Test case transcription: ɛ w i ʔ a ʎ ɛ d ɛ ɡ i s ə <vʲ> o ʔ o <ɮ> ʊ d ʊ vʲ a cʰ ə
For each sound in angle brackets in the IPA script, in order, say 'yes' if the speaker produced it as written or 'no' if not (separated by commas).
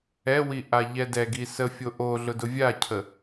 no, yes